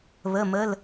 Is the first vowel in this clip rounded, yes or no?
no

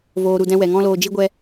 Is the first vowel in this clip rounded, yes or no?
yes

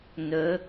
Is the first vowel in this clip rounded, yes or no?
yes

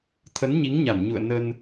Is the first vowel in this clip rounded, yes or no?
no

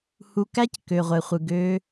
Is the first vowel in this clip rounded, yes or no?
yes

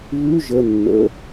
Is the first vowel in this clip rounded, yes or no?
yes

